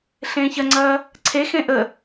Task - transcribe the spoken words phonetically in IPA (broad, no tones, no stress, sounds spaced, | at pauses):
ɬ ẽː ç ɐ ŋ͡ǀ ɐː | ǀʰ e x ẽ ʔ ə